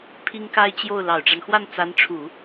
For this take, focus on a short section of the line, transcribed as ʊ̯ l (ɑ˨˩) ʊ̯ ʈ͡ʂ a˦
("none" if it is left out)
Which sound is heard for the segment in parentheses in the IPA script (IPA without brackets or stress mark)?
ɑ˨˩